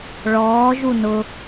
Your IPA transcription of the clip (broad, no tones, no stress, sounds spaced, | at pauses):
ɭ ɔː ʒ u n ʊ